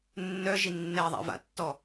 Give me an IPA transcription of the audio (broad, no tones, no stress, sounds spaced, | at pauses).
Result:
nː œ ʒ i nː ɛ ðˤ a̰ v a̰ tː ɔ